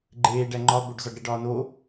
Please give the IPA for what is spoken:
ɡ͡ǃ eː ɖ æ ŋ͡ǃ ɒ b o ɖ z ɒ ɖ ɾ e ɖ ɒː n o

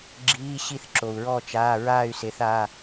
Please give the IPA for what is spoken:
ɡ͡ǁ iː˩˧˩ ɕ i˧˩ θ ǁ o˩ u̯ ɹ ɔ˧˩ t͡ʃ aː˩˧˩ ɹ aː˧˩ y̯ s e˩˧ θ aː˩˧˩

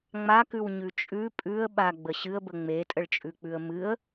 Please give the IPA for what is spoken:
ŋ͡m a k ʉ w ɲ ʉ t͡ʃʼ ʉ pʼ ʉ ə̯ ɓ a ɡ͡b ə ɕ ɨ ə̯ b ə ŋ͡m e tʼ ə ɭ t͡ʃʼ ʉ k͡p ʉ ə̯ m ɨ ə̯

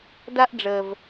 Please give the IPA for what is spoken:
d a˦ ʔ ɖ͡ʐ əː˨ v

